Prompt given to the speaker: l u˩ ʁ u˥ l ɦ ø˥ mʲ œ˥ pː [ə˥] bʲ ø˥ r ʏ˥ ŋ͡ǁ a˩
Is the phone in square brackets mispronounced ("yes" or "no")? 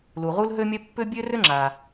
yes